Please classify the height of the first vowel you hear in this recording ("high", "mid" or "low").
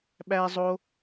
low